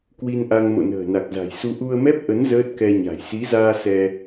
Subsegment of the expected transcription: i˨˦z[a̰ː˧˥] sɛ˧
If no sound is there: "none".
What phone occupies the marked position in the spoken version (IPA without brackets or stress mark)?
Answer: aː˧